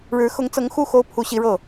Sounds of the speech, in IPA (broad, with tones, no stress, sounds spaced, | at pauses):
ɻ ɻ̩˧˥ x ʊ˧˥ ŋ t͡s ɤ˧˥ ŋ x u˥˩ x o˥ ʊ̯ pʰ u˧˥ ɕ i˧˥ ɻ ɤ˥˩